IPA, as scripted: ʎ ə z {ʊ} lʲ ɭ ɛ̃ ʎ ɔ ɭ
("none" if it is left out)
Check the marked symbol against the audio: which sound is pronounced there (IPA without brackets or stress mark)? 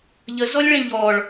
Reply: ɔ